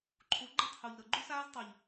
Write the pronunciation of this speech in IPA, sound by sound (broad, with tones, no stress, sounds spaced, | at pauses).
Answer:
ǃʰ u˨˦ ɡ͡ǃ u˦˨ tˤ h u˨ ʎ ɾ ɤ˨ ɡ͡ǃ u˦ s aː˦ z tˤ u˨ ʎ